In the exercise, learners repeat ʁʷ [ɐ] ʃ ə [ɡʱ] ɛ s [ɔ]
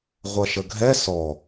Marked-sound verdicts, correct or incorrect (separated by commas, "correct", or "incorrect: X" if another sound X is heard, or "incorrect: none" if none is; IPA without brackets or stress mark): correct, correct, correct